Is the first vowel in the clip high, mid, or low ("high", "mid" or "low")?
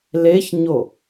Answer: mid